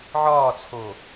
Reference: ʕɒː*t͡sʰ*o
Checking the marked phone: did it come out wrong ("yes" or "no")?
no